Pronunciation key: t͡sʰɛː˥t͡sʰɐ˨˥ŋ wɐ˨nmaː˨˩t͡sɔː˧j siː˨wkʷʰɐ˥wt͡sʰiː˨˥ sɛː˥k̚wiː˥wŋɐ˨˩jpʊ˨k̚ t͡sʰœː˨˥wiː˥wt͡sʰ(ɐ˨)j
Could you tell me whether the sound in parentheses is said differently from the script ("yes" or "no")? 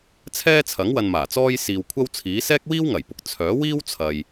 no